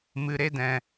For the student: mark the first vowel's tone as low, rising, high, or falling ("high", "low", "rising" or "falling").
low